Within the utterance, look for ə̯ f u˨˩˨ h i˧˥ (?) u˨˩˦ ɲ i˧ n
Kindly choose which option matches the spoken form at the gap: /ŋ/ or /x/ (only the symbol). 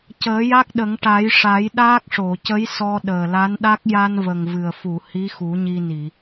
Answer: x